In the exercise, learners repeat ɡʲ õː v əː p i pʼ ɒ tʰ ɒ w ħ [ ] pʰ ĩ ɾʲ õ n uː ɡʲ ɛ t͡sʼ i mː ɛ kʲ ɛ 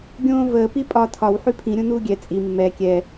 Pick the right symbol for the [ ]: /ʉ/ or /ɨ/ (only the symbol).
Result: ʉ